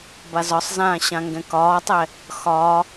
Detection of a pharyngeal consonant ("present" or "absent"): absent